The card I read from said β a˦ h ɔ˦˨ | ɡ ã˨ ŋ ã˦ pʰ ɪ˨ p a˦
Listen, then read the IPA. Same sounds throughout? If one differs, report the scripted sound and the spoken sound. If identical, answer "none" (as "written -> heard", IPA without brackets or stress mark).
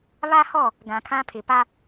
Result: ŋ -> kʰ